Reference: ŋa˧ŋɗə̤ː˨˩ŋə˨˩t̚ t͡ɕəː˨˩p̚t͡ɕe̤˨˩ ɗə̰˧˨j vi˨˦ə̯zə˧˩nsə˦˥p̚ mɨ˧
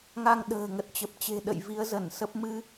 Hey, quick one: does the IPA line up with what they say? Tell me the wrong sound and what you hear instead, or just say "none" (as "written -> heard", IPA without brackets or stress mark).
əː˨˩ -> ə˨˩